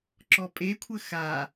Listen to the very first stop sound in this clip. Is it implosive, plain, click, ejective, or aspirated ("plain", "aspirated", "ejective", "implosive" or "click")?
click